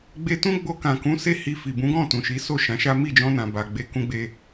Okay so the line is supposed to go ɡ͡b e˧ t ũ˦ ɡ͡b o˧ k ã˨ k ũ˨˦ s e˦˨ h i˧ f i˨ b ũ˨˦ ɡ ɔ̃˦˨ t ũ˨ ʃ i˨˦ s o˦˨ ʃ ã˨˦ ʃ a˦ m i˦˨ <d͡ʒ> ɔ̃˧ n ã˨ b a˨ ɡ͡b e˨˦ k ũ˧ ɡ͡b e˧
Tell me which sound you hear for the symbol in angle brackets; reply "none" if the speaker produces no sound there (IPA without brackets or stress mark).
d͡ʒ